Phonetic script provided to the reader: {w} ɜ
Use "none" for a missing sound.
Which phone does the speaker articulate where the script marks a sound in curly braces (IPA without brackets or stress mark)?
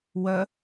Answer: w